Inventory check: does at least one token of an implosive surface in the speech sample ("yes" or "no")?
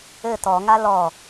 no